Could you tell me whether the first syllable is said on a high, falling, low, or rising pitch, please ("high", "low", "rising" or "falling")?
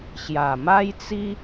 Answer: low